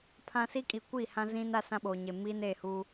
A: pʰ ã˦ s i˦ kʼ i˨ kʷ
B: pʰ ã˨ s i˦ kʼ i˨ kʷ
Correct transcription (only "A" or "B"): A